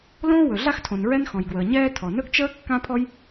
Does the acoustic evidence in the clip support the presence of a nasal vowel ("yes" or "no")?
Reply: yes